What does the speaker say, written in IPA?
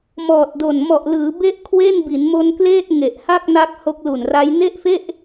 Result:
m ɔː˨˩ t̚ d o˨˩ n m ɔ˨˩ ʔ l ɯː˩˦ b e˥˩ ʔ kʰ w e˥˩ n b i˩˦ n m o˧ n k l eː˥˩ t̚ ŋ e˨˩ ʔ h a˥˩ k̚ n a˦˥ k̚ h o˦˥ k̚ l u˨˩ n r a˦˥ j n e˥˩ ʔ f e˥˩ ʔ

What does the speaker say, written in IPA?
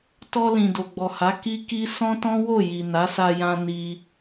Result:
t ɔ˧ l ĩ˨ d o˨ ɡ͡b ɔ˨ h a˨˦ k i˦ k i˦ s ɔ̃˦ t ɔ̃˦ w o˦˨ j i˨ n a˨˦ s a˧ j ã˧ n i˧

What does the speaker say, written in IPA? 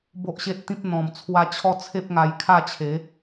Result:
b o˦ ʔ ɕ e˦ t̚ t̪ ĩ˦ p̚ n̪ ɔ̃˨˩ m t͡sʰ w a˧ t͡ɕʰ ɔ˦ t͡sʰ e˦ p̚ ŋ a˧ j kʰ a˥˧ t͡ɕʰ e˨˦

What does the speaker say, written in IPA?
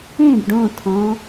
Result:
ẽ b ɖ õ tʰ ɔ̃

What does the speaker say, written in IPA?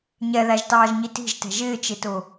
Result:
ɲ ɛ ð æ ʒ t ɑː ʒ ɲ i t i̤ ʒ t ɛ̤ ʒ ɪː t͡ʃ ɪ t ʊ

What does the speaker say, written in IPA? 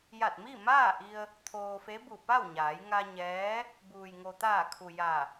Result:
j a˧˩ t̚ m i˥˨ m aː˥˨ ʔ i˧ ə̯ | t̪ʰ oː˧ f e˧˥ b u˧˩ p a˥˨ w ɲ aː˩˧ j ŋ a˧ ɲ ɛː˧˥ | b uː˩ j ŋ o˩ t̪ aː˧˩ kʰ u˩ j a˧˩

